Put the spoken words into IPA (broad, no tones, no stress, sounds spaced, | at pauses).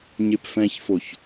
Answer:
ɲ e p f ɛ̃ ç f o ç